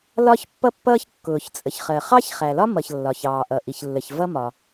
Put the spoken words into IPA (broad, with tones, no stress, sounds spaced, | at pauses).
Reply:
l ɒ˥ ç pː ʌ˥ pː ʌː˥ ç kː ʊː˩ ç t͡sʼ ə˩ ç χ ɜ˩ χ ɑ˥ ç χ æ˩ l ɒ˥ m ʌ˩ ç lː ɒ˩ ç ɑː˩ ʔ ʌ˩ ʔ i˩ ç lː ə˩ ç v ʌ˥ m ɒ˩